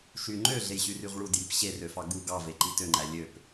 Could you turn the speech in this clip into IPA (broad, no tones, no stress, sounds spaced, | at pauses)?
ʃ y ŋ͡ǃ ø ɮ e j ɕ y r y ʁ ɭ u d j i p ɕ e r ø f ɑ ɡ u ɡ ɑ v e ǃ i t ø ŋ͡ǃ æ lʲ ø p